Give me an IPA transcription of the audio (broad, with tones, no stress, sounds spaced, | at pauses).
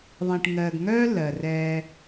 ðˤ ĩ˨ ʈ ŋ ɜ˨ ɡ ŋ œː˦ l ɜ˨ r ɛː˦